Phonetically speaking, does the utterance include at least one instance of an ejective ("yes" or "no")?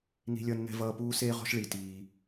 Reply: no